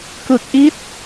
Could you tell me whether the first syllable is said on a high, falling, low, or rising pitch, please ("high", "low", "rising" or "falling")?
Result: low